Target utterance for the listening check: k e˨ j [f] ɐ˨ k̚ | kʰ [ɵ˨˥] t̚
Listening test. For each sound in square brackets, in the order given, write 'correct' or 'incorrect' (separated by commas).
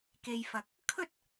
correct, incorrect